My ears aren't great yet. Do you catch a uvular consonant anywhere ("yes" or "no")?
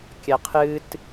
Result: yes